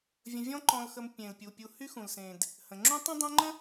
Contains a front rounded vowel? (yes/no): yes